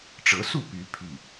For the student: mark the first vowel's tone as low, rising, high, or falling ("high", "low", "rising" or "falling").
rising